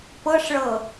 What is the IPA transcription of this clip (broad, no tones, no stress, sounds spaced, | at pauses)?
p ɤ ʂ ɭ ɤ